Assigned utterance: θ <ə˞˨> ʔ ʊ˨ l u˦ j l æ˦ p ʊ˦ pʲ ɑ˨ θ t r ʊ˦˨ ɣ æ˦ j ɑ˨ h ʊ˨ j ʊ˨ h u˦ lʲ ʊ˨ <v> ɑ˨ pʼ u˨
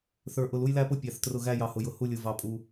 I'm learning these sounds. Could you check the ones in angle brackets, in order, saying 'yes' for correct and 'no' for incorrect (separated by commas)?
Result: yes, yes